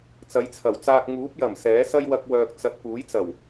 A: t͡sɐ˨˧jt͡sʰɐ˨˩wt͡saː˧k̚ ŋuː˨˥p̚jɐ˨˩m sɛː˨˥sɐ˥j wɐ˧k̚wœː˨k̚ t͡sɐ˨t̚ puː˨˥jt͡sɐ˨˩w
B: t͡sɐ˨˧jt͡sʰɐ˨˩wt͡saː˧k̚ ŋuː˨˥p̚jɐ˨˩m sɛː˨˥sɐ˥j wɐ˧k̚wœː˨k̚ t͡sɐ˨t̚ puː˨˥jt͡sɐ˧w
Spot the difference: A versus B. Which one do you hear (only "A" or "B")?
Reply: A